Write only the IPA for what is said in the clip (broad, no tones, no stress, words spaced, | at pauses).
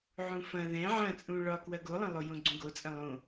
ʕũfɐ̃ ðɛ̃ ʕɐ̃t͡sʼũ ɭɒkwɐ ɡolˠɐ̃lˠo jõɡ͡ǀũɡot͡sʼɐ̃ lˠõ